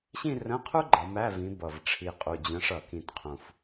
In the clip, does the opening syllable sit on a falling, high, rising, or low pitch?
falling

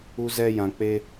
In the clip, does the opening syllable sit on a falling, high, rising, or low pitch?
high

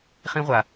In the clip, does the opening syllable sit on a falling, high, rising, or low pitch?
high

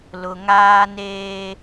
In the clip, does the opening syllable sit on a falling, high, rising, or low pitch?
low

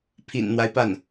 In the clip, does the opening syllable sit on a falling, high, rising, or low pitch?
low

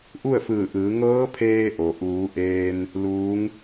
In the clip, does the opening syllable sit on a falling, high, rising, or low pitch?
falling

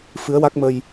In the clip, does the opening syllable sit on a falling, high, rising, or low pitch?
rising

